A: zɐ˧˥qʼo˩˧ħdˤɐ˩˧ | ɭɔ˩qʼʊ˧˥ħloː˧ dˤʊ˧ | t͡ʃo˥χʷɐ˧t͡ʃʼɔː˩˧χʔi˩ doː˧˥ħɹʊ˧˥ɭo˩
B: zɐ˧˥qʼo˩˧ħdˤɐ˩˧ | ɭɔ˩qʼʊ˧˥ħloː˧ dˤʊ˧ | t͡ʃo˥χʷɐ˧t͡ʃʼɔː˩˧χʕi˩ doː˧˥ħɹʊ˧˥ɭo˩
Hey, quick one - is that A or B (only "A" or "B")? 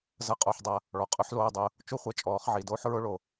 B